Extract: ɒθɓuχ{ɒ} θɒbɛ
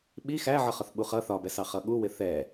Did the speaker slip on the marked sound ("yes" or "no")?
yes